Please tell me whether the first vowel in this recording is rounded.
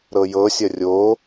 no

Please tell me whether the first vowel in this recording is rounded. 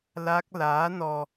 no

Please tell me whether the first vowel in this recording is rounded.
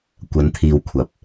no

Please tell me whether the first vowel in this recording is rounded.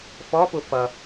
yes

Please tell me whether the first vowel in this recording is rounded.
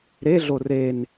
no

